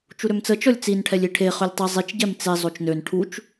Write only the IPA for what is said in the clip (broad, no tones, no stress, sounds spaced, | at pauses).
t͡ʃ u ɾ ø m t͡s ə t͡ʃ ɔ lʲ t͡s i n ʈʰ ɛ lʲ i ʈʰ e χ ø lʲ tˤ i zˤ i t͡ʃ ɟ ɛ m t͡s e zˤ o t͡ʃ n ø n ʈʰ u t͡ʃ